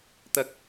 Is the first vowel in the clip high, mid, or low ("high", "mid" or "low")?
low